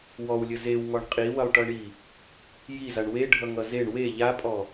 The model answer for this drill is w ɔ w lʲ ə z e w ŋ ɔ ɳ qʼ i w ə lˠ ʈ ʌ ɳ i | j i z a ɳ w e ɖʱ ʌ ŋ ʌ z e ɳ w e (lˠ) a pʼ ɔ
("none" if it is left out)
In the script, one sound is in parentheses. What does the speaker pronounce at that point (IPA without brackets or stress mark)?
ʎ